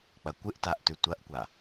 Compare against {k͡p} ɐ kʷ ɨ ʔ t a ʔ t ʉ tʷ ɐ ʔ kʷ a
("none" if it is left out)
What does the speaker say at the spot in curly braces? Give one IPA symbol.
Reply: k͡p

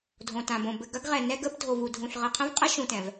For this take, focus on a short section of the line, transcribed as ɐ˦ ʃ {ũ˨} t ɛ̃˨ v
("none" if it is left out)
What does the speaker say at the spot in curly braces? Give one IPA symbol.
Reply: ũ˨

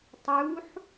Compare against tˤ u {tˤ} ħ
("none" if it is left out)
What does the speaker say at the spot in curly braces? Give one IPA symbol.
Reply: none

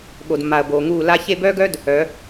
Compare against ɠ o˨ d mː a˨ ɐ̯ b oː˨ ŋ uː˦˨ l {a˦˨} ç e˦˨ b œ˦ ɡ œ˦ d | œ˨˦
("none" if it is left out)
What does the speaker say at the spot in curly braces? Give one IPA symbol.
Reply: a˧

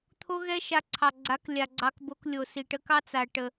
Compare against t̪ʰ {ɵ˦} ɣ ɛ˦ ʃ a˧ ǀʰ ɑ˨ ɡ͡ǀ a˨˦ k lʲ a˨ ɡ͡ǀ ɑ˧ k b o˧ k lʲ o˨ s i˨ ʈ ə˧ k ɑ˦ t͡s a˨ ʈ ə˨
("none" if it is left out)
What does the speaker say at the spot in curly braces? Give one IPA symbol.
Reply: o˦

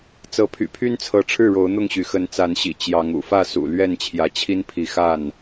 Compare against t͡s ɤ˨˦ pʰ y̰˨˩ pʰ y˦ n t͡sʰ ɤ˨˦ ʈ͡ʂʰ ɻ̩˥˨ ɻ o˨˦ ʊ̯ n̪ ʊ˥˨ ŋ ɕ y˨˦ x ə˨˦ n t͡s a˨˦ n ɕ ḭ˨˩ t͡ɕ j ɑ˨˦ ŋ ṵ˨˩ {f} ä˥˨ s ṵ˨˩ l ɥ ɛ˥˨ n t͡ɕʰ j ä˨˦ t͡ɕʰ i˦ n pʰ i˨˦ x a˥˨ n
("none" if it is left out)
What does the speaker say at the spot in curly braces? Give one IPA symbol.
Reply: f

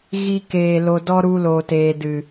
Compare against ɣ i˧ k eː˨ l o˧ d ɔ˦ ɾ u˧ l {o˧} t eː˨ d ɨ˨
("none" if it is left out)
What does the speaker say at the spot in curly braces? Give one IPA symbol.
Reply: o˨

